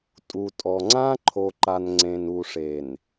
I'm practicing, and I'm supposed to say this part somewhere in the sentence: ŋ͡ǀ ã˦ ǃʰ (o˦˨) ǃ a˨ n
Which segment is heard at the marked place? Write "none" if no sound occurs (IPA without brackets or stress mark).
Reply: o˨